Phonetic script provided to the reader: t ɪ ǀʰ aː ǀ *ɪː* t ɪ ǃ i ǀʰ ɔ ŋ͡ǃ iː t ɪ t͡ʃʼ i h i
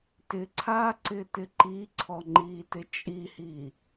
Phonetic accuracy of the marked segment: correct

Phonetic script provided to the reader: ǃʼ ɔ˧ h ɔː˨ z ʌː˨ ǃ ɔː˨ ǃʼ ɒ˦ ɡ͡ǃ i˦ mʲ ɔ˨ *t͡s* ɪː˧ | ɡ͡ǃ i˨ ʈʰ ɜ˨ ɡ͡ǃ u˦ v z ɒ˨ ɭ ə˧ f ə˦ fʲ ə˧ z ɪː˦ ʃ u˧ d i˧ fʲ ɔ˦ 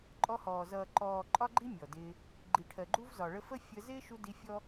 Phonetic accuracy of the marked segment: incorrect: d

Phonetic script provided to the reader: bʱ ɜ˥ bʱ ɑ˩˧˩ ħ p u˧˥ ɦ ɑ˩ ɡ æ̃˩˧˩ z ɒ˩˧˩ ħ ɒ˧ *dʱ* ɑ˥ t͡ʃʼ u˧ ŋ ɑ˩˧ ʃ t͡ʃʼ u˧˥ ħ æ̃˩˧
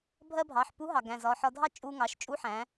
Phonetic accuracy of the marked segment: correct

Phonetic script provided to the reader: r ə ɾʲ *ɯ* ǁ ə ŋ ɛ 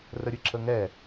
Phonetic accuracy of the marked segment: correct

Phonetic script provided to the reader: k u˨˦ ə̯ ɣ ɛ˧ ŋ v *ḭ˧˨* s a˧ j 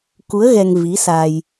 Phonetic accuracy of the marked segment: incorrect: i˨˦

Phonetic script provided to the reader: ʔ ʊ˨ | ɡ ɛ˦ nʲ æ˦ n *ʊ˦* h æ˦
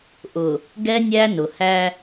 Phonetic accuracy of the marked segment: incorrect: ʊ˨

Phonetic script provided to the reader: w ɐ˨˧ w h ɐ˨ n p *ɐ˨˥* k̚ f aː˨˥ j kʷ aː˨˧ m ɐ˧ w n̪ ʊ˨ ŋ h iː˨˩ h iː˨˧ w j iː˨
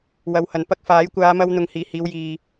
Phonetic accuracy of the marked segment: incorrect: ɐ˥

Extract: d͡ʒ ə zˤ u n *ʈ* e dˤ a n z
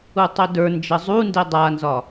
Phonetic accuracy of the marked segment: incorrect: d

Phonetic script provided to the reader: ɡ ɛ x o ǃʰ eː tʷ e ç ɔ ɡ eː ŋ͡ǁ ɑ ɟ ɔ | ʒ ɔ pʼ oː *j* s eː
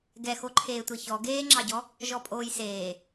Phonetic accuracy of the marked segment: correct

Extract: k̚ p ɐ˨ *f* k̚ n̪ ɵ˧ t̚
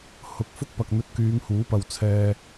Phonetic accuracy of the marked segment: incorrect: none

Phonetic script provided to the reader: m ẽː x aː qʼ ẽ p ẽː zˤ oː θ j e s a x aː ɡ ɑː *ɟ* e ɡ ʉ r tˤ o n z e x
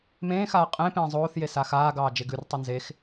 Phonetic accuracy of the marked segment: incorrect: d͡ʒ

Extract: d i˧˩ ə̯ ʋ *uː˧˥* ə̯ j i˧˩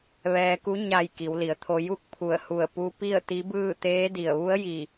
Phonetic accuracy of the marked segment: incorrect: u˧˥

